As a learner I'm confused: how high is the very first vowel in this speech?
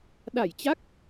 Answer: low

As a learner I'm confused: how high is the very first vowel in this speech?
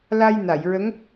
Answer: low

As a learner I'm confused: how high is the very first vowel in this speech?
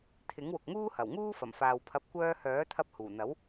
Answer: high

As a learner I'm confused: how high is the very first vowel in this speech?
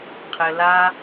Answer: mid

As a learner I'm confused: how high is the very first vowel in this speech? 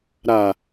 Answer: low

